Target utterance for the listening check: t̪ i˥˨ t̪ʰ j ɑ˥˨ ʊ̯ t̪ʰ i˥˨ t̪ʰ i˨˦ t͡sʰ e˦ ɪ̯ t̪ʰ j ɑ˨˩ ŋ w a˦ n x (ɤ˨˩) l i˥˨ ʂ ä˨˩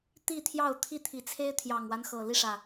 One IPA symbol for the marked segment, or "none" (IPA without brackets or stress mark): ɤ˨˩